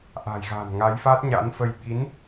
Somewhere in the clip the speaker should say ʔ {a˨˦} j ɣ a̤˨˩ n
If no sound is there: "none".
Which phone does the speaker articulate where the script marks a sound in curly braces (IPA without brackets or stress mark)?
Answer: a̤˨˩